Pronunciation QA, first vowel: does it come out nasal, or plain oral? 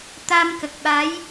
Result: oral